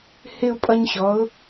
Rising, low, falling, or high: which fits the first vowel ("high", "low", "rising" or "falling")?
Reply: high